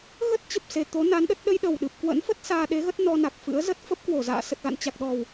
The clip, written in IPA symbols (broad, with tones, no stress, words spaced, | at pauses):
ɣə˦˥t̚ t͡ɕə˨˩p̚se˨˩ t̪o˨˦na˨˦nɗə˦˥t̚ ɗə˧jɗə˨˩wɗɨ˨˩p̚ kwə̰˧˥nfə˦˥t̚ saː˧ɗe˨˦ɣə˦˥t̚ nɔ˧na˨˩k̚fɨ̰˧˥ə̯zə˦˥t̚ fə˦˥p̚kwo˧˩ za̰ː˧˨sə˨˩t̚ɣa̰˧˨n t͡ɕa˨˩k̚ɗɔ˨˩w